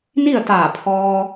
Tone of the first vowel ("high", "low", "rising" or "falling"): falling